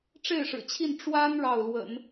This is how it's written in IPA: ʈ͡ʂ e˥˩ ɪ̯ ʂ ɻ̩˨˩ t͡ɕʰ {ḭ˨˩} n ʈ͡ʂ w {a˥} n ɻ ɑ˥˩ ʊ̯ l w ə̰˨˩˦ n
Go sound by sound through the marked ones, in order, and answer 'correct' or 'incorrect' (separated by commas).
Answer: incorrect, correct